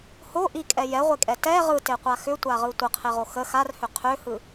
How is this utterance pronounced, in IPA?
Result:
ho ʔikʼɛ jɛʁʷekʼɛ tɛ ʁɯteqʷa xʏtʷaʁɯ tʷəqʰeʁo xə xarhʏ qʰøhɯ

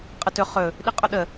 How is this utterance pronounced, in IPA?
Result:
qʼətɵ χɵ | ɗiqʼoɗə

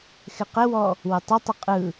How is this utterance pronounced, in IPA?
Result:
xɪqɘwɔ | wɪtˤɪtˤɪ qʼɯ

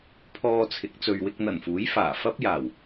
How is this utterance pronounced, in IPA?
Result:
pʰɔː˧t͡sʰɪ˨˥k̚ t͡sɵ˨ɥwɪ˧k̚n̪ɐ˨˩nfuː˨˥j faː˨˩fɐ˥p̚jaː˨˩w

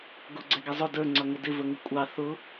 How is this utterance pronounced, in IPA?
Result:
ɡʊ ɡ͡ǀɛɡizˤʊ də˞ ŋ͡ǀʌŋədɪ vəŋʊkʷʼɑ θʊ

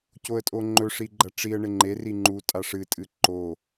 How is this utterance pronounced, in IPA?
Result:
coə̯tʼoŋ͡ǃɵʂi ɡ͡ǃɐʈ͡ʂiə̯ɳe ŋ͡ǃeri ŋ͡ǃutʼaʂ ɨtʼɨ ǃo

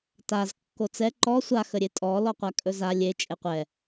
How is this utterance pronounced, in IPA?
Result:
taz kːot͡sɛ ǃɔ sʷa xəɾʲetʼɔ lɔqʷakʼɵza lʲe t͡ʃʼeqʷɛ

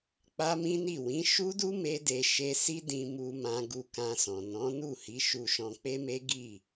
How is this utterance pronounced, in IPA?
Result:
k͡pa˦mĩ˦ni˦˨ wĩ˨˦ ʃu˦du˦ me˦de˧ ʃe˧si˦dĩ˧ mu˧mã˧ ɡu˧kã˧sɔ̃˨ nɔ̃˨˦nu˦˨hi˨˦ ʃu˧ʃɔ̃˧k͡pe˦me˦ ɡi˦˨

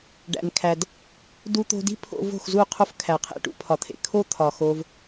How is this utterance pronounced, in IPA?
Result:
ɖæ̰˨nkʰæ˨d | du˧t̪o̤˧di̤˦ pʰo̰˧vo̤˦˨xzu˦˨ qʰo˦fkʰæ˨qʰḛ˨˦ ʈṵ˧pʰɒ˨t̪ʰḛ˨ kʰo˦t̪ʰɒ˨ xo˦v

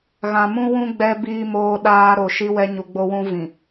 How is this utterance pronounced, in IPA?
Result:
ɣã˨mũ˦wũ˦ ɡ͡bɛ˦biː˦ moː˦ɗaː˦ ɾo˨ʃi˦wɛ˦ ɲu˨ɡ͡bo˦wũ˦ vĩ˨

